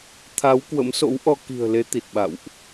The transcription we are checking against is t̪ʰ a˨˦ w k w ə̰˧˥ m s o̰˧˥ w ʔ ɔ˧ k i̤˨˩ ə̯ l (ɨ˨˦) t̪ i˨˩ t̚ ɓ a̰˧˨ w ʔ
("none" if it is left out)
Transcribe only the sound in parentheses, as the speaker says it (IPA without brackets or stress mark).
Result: e˨˦